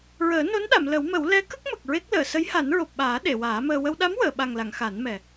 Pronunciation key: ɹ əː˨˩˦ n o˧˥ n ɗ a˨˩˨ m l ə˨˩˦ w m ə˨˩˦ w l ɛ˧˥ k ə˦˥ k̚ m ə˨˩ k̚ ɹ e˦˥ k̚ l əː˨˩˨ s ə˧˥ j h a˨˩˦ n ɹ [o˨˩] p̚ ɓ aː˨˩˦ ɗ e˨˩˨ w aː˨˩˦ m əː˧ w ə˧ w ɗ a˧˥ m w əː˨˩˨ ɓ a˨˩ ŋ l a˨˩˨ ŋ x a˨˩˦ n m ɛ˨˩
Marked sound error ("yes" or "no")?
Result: no